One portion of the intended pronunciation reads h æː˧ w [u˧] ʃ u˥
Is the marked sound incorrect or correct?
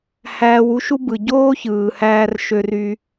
incorrect